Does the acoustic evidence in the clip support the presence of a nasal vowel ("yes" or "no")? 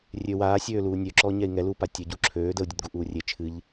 no